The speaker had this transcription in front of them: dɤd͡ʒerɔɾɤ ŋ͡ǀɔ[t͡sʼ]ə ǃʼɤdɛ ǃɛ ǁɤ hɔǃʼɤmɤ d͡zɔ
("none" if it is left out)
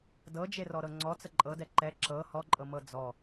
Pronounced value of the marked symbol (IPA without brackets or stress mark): t͡s